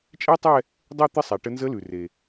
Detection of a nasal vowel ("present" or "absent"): absent